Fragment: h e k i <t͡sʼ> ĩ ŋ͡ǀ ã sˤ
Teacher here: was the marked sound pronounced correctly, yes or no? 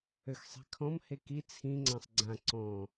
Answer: no